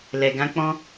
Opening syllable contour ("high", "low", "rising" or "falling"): low